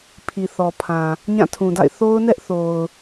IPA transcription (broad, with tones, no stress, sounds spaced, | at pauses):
pʰ i˨ θ ɔ˨ pʰ ã˨ | ɲ ã˦˨ tʰ ũ˨ d a̰˦˨ ɪ̯ θ o˦ ʊ̯ n ɛ˦ ʔ θ o˨ ʊ̯